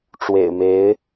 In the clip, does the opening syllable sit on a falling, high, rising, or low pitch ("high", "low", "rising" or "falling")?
low